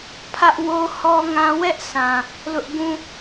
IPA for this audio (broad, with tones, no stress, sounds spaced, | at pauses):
pʰ ä˦ ʔ w o˦ h ɔ˦ ŋ ã˦ w ɛ˦ ʔ s ã˨ | l ʊ˦ ʔ ɡ ũ˦